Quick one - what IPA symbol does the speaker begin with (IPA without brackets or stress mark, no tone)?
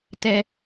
t